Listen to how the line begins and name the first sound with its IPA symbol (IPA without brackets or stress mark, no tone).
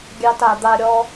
ɡʲ